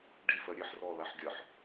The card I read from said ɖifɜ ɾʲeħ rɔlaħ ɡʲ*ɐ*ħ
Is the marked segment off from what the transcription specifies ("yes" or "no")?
no